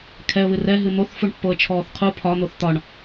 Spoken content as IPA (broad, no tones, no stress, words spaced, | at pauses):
kʰɛə̯βɨ rɛ ɦɨn̪oθ fuɳpːoə̯t͡ʃʰɔːθqʰu pʰɒ n̪oθt̪ɒɳ